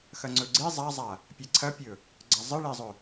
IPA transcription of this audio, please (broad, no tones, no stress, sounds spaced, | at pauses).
x ɐ ŋ͡ǀ ɵ ɡ͡ǀ i zˤ a zˤ a | pʲ e ǀʰ ɐ pʲ ɵ | ɡ͡ǀ ɐ zˤ ɨ ɭ e zˤ ɵ